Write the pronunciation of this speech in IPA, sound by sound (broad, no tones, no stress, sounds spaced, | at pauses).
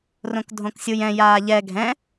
r õ k dʱ õ k sʲ u j ɛ̃ j aː ʎ ɛ ɡʱ ɛ̃